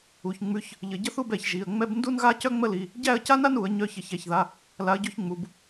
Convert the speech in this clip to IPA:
u˩˧˩ ç ŋ͡m ʉ˨˥ ç | ʎ ə˧˩˧ ɟ ə˥ θ u˥˧ b ɛ˧˩˧ ç ʒ i˩˧˩ ə̯ ŋ͡m ɛ˥ b n d u˥ n ɣ a˥ c œ˥ ŋ͡m ə˥ l i˩˧˩ | ɟ æ˥˧ ə̯ c a˥ n a˥ n u˧˩˧ ə̯ ɲ œ˨˥ ç ə˧˩˧ ç æ˩˧˩ ç ð a˩˧˩ | l a˨˥ ə̯ ɟ ʉ˥˧ ç ŋ͡m u˩˧˩ b

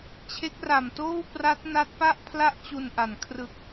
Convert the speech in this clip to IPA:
t͡ɕʰ e˦˥ k̚ r a˨˩ m t oː˥˩ w p r a˦˥ t̚ n a˦˥ t̚ p a˥˩ ʔ pʰ l a˥˩ ʔ t͡ɕ u˧ n ʔ a˨˩ n kʰ r ɯ˨˩ k̚

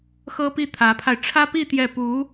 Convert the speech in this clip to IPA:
x ɤ˥ p i˥˩ t̪ʰ ä˧˥ pʰ a˧ ɪ̯ ʈ͡ʂʰ ä˥ p i˥˧ t̪ j ɛ˥˩ p u˧˥

